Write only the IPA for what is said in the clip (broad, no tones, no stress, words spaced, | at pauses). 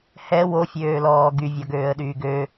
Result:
hɛ wofʲøːlɔː ɡyvʲɔɡøːə̯ɗyː ɡø